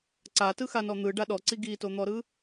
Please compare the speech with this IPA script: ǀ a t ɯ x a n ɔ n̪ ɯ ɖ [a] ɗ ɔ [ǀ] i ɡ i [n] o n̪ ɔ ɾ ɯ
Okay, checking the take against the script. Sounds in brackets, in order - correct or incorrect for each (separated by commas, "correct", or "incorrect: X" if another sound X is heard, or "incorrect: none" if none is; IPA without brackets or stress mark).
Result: correct, correct, incorrect: t